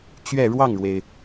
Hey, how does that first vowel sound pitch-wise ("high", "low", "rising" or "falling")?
falling